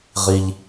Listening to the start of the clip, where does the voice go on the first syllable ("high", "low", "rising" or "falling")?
high